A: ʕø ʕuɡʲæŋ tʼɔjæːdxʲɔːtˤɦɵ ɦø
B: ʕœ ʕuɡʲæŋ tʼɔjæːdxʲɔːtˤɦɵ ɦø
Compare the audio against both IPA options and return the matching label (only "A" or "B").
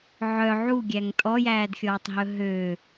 B